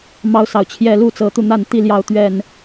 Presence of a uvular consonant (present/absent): absent